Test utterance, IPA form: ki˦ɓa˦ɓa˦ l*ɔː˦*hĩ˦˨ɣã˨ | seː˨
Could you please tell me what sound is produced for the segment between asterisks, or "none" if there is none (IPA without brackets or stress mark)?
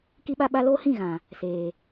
oː˦